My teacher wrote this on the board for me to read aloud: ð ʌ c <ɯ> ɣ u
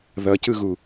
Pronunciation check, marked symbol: correct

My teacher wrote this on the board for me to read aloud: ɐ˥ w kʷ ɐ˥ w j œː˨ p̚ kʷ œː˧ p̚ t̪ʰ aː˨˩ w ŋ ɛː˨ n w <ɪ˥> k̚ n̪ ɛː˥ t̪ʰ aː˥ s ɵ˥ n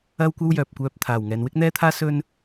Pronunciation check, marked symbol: correct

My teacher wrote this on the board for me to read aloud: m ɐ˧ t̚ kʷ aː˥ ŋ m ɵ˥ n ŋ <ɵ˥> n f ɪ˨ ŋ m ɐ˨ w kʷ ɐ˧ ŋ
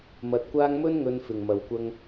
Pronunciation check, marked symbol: incorrect: ɵ˧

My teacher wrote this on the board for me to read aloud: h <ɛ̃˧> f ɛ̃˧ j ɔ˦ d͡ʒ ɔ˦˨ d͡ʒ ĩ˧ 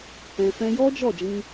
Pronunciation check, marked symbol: incorrect: ɛ̃˨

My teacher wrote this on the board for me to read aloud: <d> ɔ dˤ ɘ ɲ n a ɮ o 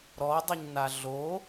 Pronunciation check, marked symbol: incorrect: ɾ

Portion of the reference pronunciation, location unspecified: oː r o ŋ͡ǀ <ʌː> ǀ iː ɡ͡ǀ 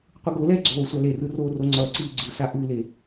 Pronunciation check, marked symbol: correct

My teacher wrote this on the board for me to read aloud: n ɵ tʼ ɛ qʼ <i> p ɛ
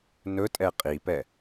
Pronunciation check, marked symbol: correct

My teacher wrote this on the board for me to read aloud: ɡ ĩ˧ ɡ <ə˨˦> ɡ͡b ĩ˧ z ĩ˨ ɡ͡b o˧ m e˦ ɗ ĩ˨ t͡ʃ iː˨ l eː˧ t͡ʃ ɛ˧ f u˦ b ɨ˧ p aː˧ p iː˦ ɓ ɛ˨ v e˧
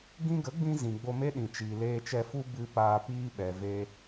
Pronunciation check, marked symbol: correct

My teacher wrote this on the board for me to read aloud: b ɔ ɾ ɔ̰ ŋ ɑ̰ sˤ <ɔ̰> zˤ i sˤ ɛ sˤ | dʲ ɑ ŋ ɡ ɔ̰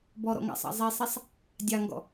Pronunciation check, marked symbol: incorrect: ɑ̰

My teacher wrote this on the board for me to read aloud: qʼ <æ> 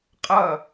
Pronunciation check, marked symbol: incorrect: ɐ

